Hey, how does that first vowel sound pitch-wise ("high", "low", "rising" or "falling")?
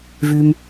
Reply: low